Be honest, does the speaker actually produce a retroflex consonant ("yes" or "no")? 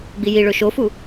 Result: yes